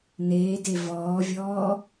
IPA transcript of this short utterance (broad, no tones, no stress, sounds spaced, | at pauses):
n eː d e v ɔː vʲ ɔː